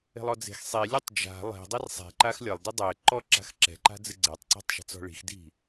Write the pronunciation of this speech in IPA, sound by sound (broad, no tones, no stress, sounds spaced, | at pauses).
e̤ lˠ ɔ d͡z e̤ x sˤ i lʲ ɨ tˤ d͡ʒ a̤ lˠ e̤ dˤ ɘ r sˤ e̤ ǃ a x lʲ ɐ lˠ d i dˤ ɛ ǃ ɔ ǁ a̤ x ǁ ɛ̤ ǃ a̤ d͡z ɨ ɡ͡ǀ ɛ tˤ ǀ ɛ̤ tˤ ʃ e̤ t͡s ɔ̤ ɭ i̤ x d i̤